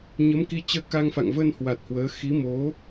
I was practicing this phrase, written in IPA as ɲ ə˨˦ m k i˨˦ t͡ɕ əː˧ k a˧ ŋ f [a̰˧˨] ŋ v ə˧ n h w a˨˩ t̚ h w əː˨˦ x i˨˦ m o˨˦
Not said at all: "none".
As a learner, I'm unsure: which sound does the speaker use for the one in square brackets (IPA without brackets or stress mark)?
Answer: a̰˧˨